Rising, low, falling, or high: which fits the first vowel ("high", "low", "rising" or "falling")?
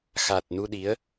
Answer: low